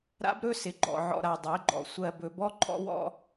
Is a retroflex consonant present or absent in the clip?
absent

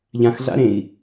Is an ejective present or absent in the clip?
absent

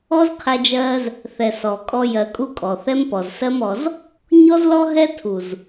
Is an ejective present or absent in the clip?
present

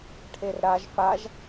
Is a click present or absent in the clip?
absent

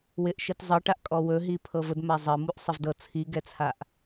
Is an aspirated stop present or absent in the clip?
present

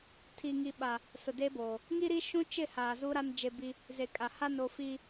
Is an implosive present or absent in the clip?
present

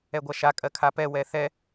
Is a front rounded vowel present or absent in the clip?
absent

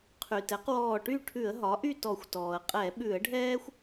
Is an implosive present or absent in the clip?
present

